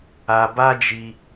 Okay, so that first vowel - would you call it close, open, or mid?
open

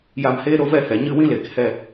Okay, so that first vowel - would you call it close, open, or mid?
open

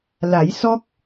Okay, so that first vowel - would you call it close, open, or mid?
open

